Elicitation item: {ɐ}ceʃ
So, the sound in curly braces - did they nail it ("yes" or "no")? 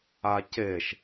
no